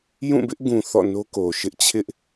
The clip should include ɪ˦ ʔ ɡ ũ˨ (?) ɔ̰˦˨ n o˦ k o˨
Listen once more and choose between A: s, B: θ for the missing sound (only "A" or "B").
B